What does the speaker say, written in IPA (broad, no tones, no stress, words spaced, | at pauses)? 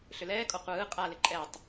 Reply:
ɬʏlɛːkʼɔ qʷɯː qʼalɪ ǃʼɛtˤ